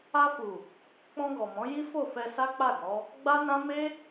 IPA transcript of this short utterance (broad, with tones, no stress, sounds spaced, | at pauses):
a˧ f u˨ | k͡p ɔ̃˧ ɡ ɔ˨ m ɔ̃˨˦ j i˦ f o˦˨ f ɛ˧ s a˦ k͡p a˦˨ ɡ ɔ˨˦ | ɡ͡b a˦ n ã˦ m e˦